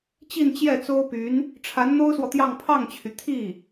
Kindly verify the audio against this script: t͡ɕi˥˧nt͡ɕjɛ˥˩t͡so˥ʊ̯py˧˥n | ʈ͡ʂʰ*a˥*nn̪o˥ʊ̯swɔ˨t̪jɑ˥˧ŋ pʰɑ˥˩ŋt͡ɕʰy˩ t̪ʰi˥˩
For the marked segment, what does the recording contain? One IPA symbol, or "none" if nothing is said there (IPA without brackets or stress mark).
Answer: a˧˥